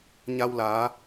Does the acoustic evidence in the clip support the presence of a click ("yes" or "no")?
no